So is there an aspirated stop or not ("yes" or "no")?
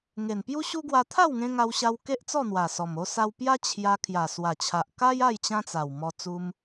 yes